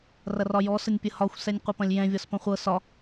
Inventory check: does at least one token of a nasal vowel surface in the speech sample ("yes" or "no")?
yes